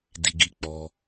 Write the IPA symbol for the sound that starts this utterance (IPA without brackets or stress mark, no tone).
d